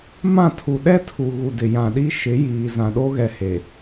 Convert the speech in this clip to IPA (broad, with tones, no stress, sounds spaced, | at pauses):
m ã˦˨ tʰ u˨ ɗ ɛ˦ tʰ u˨ ɣ u˨ d ɪ˨ j ã˨ ɗ i˦ ʃ ɪ˨˦ j iː˨ z ã˨ ɗ o˦ ɣ ɛ˨ h e˨